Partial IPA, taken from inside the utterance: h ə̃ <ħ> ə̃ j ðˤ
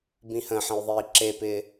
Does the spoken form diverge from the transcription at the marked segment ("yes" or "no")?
no